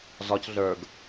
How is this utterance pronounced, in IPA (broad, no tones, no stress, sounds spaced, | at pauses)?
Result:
z ɒ c ɮ ə˞ ɡ